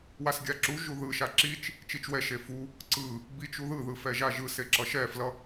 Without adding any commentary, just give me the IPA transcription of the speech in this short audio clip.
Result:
w a s ɡʲ a ǁ u ʒ u ð ɯ ʃ a ǁ i t͡ʃ | t͡ʃ i t͡ʃ w ɛ ʃ e f u | ǀ ɯ | b i t͡ʃ u ð ɯ ð ɯ f ɛ ʒ a ʒ ɯ s e ǁ ʌ ʃ ɛ f l ʌ

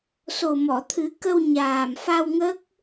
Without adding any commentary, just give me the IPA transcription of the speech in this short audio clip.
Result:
s o˨˩ m ɔ˨˩˨ t̪ʰ ɨ˨˩˦ k ə˧ w ɲ aː˨˩ m f a˧ w ŋ ə˦˥ k̚

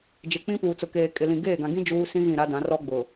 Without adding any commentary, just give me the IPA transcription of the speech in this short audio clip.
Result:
d͡ʒ ɪ˨ k͡p ĩ˦ p uː˨ t͡s ʊ˨ k eː˨ kʼ ɪ˨ l ĩ˨ ɡ eː˦˨ ɡ ã˨ ɡ ĩ˦ d͡ʒ uː˦ s ĩ˦ ɣ ĩ˦˨ ɾ a˦ d ã˨˦ r ɔ˦ ɡ͡b ʊ˨

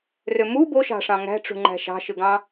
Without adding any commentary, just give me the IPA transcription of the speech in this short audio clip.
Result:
r ø m u b o ʃ ɑ̤ ʂ ɑ̃ ŋ æ̤ ʈ͡ʂ ṳ ŋ͡ǃ æ̤ ʃ ɑ̤ ʃ ɯ ɡ ɑ̃

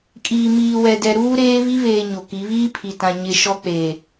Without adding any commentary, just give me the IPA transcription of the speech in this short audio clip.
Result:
kʼ iː˨ m iː˨ w ɛ˨ d ɛ˨ ɾ uː˦ ɾ eː˦ β i˦ β eː˨ ɲ o˨ k i˨˦ β iː˦ pʰ i˨ t ã˨ ɲ ɪ˦ ʃ ɔ˦ k͡p eː˨

